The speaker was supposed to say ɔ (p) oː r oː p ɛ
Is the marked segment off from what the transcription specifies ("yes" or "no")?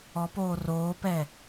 no